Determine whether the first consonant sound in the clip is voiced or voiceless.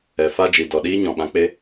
voiceless